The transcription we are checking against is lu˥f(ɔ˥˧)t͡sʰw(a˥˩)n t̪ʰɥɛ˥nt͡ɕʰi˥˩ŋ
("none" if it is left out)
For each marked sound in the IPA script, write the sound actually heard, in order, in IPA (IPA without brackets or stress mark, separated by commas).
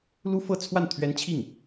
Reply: ɤ˥˧, a˥˩